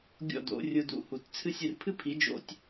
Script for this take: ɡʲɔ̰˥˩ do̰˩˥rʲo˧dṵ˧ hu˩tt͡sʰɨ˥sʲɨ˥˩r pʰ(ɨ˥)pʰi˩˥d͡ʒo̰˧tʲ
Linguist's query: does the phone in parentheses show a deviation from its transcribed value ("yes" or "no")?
no